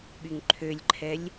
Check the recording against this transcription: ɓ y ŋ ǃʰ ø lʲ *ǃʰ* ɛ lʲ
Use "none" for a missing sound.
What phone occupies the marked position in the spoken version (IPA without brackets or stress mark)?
ǃʰ